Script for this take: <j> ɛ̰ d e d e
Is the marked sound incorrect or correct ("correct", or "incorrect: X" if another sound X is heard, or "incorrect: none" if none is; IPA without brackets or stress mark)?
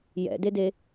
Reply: correct